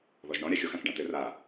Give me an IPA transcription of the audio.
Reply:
ðɔʒɳɔ̃ ɾʲaxʲoxãk ɖãtɘr a

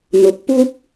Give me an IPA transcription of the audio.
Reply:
n̪ʊ˧k̚ puː˥k̚

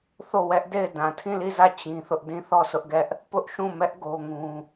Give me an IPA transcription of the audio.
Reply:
θo˦˨wɛ˦ʔde˦˨ɪ̯ dã˨tʰĩ˦˨li˦˨zä˦˨ t͡ɕĩ˦θʊ˦ʔ dĩ˦˨θɔ˦˨sʰʊ˦ʔɡɛ˦ʔ | pʊ˦ʔʃũ˦˨mɛ˦ʔ ɡo˦ŋũ˦

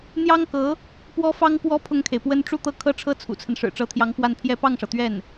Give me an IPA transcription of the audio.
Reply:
n̪jɑ˥ŋkɤ˧˥ | pwɔ˥fɑ˥ŋkwɔ˥ pʰʊ˥˩ŋkʰe˩ɪ̯pwə˥n ʈ͡ʂu˥˧t̪ɤ˥˧ kʰɤ˥˧ʈ͡ʂʰɤ˥˩ t͡sʰṵ˨˩t͡sʰə˦n ʂɻ̩˨˩ʈ͡ʂɤ˧˥t̪ʰjɑ˧˥ŋ pwa˥˩npʰjɛ˥ pɑ˥˩ŋʂɤ˩t̪ɥɛ˥˩n

